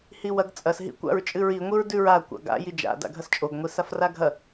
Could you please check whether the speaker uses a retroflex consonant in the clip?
no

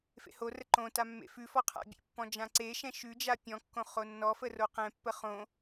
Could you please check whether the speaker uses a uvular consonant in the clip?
yes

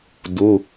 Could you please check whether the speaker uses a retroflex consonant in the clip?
no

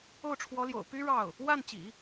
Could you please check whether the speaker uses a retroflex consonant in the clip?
yes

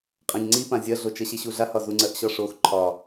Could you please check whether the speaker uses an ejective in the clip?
yes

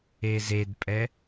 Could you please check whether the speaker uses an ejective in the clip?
yes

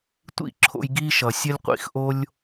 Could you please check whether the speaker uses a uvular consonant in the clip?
yes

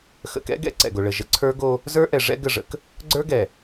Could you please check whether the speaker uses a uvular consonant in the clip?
no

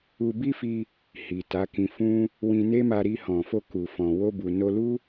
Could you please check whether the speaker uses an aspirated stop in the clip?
no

